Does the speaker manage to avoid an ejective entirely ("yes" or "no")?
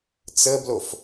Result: yes